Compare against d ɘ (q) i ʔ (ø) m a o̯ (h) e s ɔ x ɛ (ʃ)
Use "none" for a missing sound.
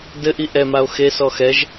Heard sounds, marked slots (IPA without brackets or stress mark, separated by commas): ʔ, ɛ, x, ʒ